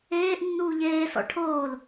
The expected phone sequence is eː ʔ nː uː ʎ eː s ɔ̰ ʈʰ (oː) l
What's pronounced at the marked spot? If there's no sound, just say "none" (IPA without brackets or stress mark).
oː